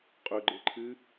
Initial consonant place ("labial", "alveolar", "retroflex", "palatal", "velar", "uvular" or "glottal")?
uvular